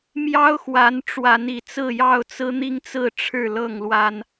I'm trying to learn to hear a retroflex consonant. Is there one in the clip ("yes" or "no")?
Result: yes